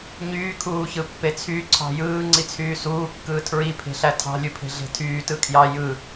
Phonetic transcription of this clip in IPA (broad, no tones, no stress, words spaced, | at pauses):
ɲyː kʰuːçɯpːet͡sʰy ǀʰɑ̤jɯː ŋ͡ǀit͡sʰyːsuː kːɯːtʰɹi pʰe̤ɬætʰɑ̤ lʲupʰe̤ɮe̤tʰyː tɯkʰjɑ jɯ